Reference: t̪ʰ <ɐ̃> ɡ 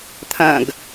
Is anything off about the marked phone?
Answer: no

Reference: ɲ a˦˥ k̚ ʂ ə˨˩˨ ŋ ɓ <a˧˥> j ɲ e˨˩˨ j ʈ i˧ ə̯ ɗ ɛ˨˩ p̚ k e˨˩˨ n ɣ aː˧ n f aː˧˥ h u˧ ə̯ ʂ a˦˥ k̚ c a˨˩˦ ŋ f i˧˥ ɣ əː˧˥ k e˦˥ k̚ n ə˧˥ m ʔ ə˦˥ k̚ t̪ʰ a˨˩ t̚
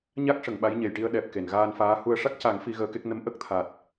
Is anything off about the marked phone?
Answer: no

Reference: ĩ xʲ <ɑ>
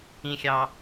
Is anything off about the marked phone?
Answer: no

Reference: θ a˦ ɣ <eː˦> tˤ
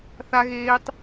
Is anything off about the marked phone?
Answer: no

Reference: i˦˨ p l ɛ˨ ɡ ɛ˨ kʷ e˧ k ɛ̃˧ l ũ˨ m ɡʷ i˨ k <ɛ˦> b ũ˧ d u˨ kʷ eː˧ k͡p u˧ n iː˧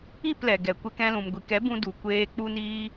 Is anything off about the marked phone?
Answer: yes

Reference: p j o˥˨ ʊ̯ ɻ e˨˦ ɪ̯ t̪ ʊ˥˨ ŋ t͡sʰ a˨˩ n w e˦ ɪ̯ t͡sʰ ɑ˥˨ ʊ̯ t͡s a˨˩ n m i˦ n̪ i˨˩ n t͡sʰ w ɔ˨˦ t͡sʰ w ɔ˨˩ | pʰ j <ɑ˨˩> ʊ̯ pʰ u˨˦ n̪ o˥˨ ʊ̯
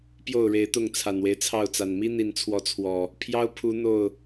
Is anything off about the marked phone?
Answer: yes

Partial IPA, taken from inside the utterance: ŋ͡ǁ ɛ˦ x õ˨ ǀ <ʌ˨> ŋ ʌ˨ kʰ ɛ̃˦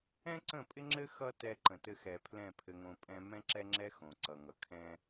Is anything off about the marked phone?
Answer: no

